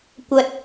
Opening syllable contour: low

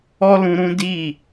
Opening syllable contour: high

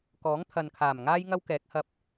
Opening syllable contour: rising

